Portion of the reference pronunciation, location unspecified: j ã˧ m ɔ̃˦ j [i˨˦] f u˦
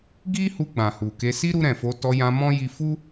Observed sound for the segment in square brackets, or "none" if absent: i˧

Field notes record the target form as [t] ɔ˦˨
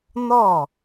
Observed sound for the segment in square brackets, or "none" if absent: n̪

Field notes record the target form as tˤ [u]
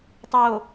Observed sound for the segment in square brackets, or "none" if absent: o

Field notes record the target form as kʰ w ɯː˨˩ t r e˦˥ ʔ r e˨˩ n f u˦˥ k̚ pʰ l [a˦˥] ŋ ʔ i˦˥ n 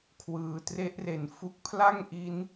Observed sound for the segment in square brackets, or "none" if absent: a˥˩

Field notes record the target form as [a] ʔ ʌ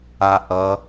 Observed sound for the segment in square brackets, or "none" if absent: a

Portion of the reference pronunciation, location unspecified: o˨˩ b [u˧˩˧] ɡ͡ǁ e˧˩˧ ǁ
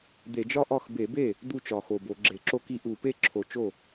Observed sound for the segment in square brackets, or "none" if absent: o˧˩˧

